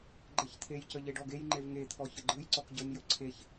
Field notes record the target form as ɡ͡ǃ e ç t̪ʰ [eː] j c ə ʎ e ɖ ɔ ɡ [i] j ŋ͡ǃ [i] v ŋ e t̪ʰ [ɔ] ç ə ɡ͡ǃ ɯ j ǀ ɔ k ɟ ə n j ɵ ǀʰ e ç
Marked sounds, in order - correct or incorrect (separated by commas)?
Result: incorrect, incorrect, incorrect, correct